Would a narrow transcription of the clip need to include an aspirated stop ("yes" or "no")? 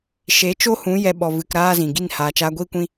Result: no